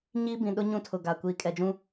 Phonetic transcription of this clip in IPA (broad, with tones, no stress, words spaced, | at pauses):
ɲiː˦bĩ˨ ɗʊ˦ ɲũ˦tʰʊ˨ ɡa˨ kʷiː˨kʼɛ˨d͡ʒũ˦